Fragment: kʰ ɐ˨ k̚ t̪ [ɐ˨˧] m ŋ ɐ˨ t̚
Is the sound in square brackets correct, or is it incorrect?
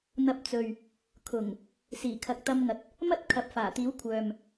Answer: incorrect